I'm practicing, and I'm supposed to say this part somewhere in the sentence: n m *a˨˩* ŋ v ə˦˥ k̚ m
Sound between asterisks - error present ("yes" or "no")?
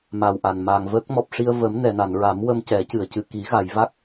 no